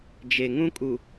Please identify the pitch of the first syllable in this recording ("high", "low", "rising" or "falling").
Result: low